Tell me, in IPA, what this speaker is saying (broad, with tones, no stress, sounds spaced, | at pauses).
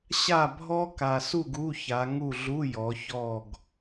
ɕ a˦˨ bʱ ɔ˦˥ k a˨ s u˦˨ ɡ u˧˥˧ ç a˨˦ ŋ u˦˨ ɮ u˧˥˧ j ɔ˨˦ ç ɔ˦˨ ɡ